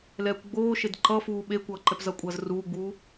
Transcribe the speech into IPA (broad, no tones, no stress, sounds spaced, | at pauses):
l ɛː kʷ ɡ͡b oː ʃ e d ǃ ʌ f uː ɓ e kʷ ʌː ǃ ɛ p z ʌ kʷʼ ʌː z r uː ɡ͡b uː